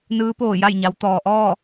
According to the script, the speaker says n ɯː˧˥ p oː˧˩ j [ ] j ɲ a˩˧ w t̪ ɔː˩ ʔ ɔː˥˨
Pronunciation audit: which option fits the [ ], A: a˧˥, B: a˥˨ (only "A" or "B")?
B